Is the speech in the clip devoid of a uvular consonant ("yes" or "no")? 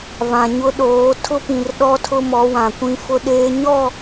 yes